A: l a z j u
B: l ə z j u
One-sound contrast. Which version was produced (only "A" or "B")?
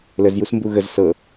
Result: B